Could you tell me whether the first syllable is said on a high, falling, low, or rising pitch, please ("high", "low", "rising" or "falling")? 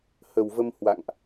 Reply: low